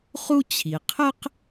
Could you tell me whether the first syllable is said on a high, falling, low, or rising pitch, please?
high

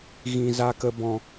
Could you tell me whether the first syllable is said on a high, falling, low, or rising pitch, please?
low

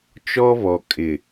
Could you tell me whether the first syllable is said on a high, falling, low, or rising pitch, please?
high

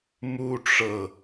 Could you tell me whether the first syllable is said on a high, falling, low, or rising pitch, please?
high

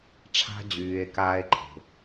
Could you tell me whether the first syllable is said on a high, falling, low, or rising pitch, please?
low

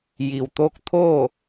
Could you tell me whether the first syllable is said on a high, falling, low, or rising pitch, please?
low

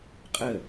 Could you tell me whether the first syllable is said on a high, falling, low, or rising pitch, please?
falling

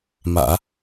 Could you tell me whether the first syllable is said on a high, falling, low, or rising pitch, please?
low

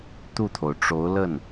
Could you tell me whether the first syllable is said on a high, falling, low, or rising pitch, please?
falling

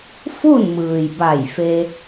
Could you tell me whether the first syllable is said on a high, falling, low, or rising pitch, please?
falling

